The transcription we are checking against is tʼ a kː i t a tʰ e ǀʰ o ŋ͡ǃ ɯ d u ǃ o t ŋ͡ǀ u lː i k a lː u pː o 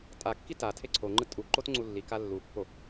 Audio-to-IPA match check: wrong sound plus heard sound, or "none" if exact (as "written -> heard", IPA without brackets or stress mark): d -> tʼ